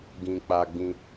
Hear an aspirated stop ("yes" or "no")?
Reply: no